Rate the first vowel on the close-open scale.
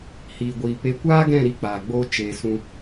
close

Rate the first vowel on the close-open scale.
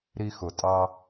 close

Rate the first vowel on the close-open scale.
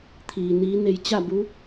close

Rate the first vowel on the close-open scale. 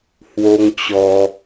mid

